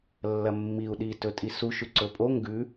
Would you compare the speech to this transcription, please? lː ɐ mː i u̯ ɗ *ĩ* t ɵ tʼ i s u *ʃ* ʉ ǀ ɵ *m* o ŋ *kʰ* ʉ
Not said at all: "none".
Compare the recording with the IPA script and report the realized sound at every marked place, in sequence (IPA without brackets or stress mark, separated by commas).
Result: i, ʃ, pʼ, ɡ